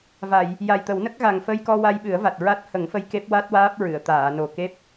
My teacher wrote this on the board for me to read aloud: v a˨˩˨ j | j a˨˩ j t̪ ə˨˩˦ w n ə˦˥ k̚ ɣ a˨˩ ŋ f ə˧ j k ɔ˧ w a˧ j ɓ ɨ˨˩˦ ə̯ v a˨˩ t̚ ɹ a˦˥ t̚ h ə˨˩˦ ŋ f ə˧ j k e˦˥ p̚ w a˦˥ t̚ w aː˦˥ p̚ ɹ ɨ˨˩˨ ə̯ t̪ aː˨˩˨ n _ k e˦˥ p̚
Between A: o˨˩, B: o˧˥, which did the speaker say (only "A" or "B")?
A